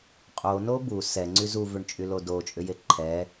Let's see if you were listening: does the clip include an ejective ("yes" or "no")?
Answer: yes